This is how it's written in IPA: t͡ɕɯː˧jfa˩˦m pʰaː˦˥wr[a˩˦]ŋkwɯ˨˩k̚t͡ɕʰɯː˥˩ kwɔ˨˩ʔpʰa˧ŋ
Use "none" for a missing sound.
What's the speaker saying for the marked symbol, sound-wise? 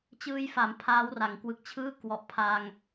a˩˦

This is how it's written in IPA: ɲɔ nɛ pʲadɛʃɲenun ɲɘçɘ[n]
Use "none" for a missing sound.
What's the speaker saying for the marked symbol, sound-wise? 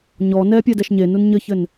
n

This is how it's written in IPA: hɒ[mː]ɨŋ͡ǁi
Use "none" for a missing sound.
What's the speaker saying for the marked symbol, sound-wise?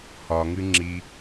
ŋ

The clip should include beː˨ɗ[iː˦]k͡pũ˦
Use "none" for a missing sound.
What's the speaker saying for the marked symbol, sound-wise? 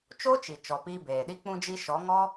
i˦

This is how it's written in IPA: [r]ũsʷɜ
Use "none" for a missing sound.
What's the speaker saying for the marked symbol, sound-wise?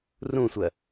r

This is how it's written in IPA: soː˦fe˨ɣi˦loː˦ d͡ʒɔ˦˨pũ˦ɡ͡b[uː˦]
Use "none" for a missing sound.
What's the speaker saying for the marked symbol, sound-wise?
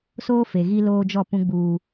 uː˦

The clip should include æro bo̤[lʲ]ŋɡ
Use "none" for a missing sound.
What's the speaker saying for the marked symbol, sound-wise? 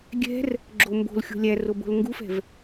l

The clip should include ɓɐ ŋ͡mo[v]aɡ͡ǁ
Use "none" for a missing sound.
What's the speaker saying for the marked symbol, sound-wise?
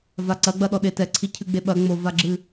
v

